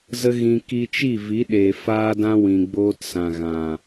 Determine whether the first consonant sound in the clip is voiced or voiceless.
voiced